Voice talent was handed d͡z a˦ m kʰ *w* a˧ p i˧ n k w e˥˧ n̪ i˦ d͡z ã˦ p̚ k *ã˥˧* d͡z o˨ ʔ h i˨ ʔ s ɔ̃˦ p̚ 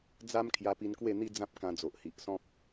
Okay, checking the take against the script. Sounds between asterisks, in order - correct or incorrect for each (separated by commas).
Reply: incorrect, incorrect